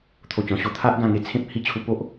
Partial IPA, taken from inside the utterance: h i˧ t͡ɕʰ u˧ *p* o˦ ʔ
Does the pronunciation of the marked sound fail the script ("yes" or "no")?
no